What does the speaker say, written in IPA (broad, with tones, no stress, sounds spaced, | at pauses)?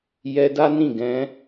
j ɛ˧ d a˦ n ĩ˦˨ ɡ ɛ̃˨˦